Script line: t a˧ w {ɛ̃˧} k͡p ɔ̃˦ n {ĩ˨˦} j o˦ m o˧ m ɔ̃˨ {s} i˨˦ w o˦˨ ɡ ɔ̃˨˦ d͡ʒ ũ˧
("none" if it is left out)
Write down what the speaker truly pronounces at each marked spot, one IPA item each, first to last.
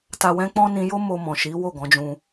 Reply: ɛ̃˦, ĩ˧, ʃ

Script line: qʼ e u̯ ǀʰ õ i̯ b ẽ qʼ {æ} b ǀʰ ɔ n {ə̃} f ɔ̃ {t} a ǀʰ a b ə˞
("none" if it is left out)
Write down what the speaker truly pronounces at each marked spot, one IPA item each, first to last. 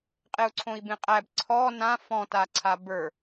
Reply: æ, ã, t

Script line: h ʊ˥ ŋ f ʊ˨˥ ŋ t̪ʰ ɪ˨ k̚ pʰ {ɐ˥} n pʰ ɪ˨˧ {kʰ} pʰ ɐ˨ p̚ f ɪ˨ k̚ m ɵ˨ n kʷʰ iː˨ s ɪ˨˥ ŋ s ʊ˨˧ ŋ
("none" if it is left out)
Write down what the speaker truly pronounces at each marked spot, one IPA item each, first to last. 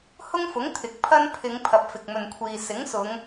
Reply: ɐ˥, ŋ

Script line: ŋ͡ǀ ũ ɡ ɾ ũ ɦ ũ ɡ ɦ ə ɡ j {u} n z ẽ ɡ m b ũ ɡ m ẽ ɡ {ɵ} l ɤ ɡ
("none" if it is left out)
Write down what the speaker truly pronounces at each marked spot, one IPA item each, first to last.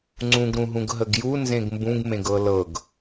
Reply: u, ɤ

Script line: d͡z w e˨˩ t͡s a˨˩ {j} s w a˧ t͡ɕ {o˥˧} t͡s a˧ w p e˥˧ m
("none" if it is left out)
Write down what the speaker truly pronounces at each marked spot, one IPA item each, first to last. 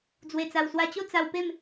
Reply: w, o˥˧

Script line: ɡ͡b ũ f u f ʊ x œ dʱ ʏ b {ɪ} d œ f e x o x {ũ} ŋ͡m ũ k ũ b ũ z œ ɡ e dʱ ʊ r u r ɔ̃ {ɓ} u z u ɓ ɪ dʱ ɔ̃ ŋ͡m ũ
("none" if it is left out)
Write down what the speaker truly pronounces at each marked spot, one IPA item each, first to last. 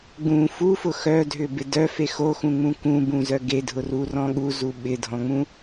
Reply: ɪ, ũ, ɠ

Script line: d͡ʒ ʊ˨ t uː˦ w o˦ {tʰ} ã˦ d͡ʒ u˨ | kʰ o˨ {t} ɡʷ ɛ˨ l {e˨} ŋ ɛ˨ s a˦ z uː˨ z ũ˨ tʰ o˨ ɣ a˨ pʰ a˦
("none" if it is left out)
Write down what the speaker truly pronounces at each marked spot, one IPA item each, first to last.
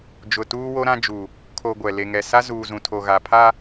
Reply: ɾ, none, e˨

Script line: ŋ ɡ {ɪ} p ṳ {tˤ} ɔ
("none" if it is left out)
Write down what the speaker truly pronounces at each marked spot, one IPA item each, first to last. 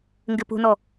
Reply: ɪ, n

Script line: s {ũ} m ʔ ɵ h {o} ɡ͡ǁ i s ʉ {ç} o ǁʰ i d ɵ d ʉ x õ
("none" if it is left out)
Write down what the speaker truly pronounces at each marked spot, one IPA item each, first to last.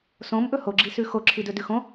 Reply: õ, o, x

